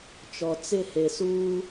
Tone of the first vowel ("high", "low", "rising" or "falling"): low